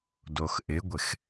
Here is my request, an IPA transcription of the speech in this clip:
doxʔɪɡʷɪx

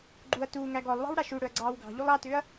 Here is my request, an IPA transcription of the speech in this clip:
ɡ͡ǃuɐ̯ tuː ŋæɡɔlˠwɑ̤w ɽaʃuɽɵɐ̯ ɡ͡ǀɑːwɡɑ̤ʎulˠ ɑtʏːɐ̯

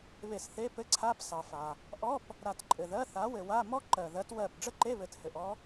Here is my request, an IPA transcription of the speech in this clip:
βe˧˩sθe˧˥˧pɘ˧˥˧ǀʰa˧˥˧p sɑ˩fa˩ | ʔɔ˧˥˧p | ɾa˧˩tǃʼɘ˩ðɜ˧˥˧θa˨˥ wɘ˩wa˧˥˧ mɔ˥ ǃɜ˩ðɜ˨˥t wɜ˧˩p ɖ͡ʐə˥ǃe˧˥˧ βɘ˧˩thɘ˧˩ʔɔ˥

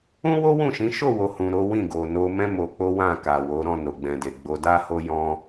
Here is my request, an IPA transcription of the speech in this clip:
ũ˦wo˦wũ˦˨ʃĩ˨˦ ʃo˦˨wo˨hũ˨ ɾo˨˦wĩ˦˨ ɡo˨ no˧mɛ̃˦ mo˧ k͡po˦wã˦˨ka˨wo˨˦ ɾɔ̃˦˨no˨ɡ͡bɛ̃˨de˨ ɡ͡bo˧da˦ho˦ jɔ̃˦

